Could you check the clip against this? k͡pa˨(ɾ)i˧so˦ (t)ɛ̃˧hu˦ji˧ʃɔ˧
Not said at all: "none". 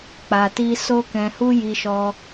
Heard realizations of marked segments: t, k

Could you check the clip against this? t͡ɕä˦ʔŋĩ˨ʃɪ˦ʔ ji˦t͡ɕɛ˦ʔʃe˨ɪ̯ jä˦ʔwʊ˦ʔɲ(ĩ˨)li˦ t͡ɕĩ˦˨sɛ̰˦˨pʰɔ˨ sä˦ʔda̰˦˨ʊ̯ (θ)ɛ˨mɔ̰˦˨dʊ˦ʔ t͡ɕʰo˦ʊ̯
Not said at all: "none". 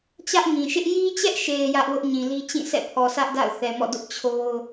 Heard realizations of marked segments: ĩ˨, θ

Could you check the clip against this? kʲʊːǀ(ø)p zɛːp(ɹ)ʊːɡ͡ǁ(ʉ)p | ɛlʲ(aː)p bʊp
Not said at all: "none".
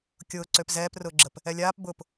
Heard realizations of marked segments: ø, r, ə, aː

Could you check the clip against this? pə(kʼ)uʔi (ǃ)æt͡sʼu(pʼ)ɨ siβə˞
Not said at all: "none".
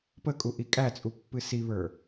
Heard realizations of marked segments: kʼ, kʼ, pː

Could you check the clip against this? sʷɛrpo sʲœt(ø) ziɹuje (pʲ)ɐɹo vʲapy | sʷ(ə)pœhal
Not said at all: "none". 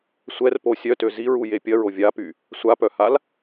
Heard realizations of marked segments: ø, pʲ, a

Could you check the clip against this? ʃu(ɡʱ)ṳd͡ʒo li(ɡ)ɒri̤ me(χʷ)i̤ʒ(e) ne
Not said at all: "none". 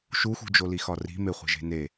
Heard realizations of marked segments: x, x, χʷ, e̤

